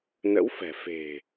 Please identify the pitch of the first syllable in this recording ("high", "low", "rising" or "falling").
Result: rising